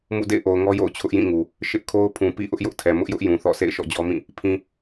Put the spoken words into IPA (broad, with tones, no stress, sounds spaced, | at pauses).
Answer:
m ṵ˦˨ d ḛ˦˨ ɪ̯ ʔ o˨ ʊ̯ ŋ ɔ˦ j o̰˦˨ ʊ̯ t͡ɕʰ ʊ˦ ʔ j ĩ˦˨ ŋ u˨ | ʃ ɪ˦ ʔ kʰ o˦ ʊ̯ pʰ ũ˨ p ḭ˦˨ ʔ ʊ˦ ʔ j ʊ˦ ʔ tʰ ɛ˨ m ʊ˦ ʔ j ʊ˦ ʔ j ũ˨ θ ɔ̰˦˨ sʰ ḛ˦˨ ɪ̯ ʃ ɔ̰˦˨ d͡ʑ ɔ˦ m ĩ˦˨ | pʰ ĩ˨